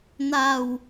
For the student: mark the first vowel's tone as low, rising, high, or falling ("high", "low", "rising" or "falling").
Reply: low